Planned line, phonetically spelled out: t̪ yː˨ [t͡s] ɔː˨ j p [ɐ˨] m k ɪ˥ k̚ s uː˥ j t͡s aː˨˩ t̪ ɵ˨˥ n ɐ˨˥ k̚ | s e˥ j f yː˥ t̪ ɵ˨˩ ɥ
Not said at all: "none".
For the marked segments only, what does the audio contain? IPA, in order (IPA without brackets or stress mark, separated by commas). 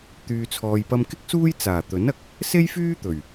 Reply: t͡sʰ, ɐ˧